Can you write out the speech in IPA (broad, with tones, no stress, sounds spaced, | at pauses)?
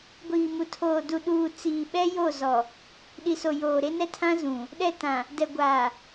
ɡʷ iː˨ m u˨ tʰ oː˨ d u˨ ɗ uː˨ t͡s iː˨ ɓ ɛ˦ j o˦˨ z ɔ˨ | ɗ i˨ s o˨ j oː˨ ɾ e˦ n ɛ˦ tʰ ã˦ z ũ˨ | ɗ ɛ˦˨ t ã˨ | d ɛ˨ ɡʷ aː˨